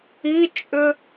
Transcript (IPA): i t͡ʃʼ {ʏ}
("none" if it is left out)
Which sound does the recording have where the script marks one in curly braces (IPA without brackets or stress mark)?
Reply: ʏ